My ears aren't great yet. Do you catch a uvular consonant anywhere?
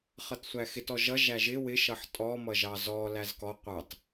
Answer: yes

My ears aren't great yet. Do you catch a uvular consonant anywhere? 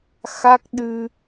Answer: no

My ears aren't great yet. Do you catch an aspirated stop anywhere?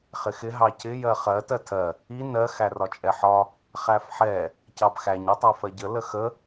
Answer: yes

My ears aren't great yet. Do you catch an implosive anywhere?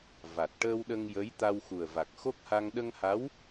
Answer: yes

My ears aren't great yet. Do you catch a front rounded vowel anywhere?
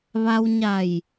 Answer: no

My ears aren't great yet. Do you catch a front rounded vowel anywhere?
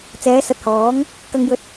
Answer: no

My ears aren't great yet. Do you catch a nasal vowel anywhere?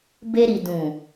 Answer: yes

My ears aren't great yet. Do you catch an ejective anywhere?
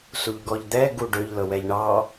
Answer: no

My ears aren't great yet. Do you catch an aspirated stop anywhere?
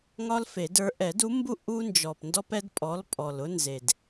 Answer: no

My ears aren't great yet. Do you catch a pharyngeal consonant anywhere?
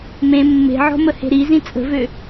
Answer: yes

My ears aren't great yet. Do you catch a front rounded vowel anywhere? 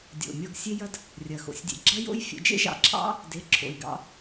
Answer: no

